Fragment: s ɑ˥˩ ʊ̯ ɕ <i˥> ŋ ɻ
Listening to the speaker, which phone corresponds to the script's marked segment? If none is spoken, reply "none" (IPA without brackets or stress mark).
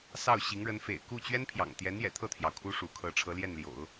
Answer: i˧˥